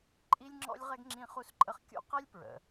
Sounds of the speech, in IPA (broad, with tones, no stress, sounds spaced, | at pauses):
ǃʼ i˥ lʲ ŋ͡ǁ ɔ̰˥ lʲ ʁ ɛ˥ ɡ ŋ͡ǁ ĩ˥ χ u˥ s ǃʼ ə˥ χ kʲ ṵ˥ q ɛ˥ lʲ p ɹ ə̰˩